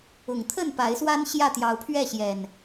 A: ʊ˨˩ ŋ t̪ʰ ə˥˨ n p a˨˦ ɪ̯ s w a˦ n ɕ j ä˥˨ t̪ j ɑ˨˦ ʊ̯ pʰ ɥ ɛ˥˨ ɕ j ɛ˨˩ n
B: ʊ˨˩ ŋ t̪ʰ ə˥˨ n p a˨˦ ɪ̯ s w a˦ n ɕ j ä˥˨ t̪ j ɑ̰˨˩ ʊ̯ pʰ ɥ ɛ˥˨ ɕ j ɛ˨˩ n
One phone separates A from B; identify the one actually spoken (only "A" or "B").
A